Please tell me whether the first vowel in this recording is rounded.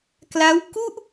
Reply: no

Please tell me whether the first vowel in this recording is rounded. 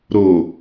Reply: yes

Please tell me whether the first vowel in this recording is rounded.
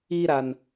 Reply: no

